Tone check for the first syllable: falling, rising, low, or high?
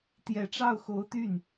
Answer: rising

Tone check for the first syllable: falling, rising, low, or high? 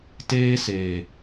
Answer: high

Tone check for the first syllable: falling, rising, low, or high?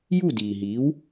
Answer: falling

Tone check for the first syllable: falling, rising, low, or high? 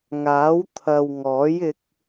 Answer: rising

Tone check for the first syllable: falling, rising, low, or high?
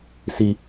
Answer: low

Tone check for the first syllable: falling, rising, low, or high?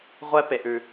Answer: high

